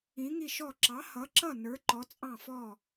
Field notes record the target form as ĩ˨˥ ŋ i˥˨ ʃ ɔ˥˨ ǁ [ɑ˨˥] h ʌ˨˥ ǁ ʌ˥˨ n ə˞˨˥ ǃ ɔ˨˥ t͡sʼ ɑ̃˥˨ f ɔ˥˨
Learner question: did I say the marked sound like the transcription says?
yes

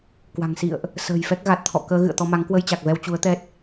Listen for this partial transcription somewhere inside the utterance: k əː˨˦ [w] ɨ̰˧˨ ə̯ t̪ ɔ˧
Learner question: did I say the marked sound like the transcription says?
no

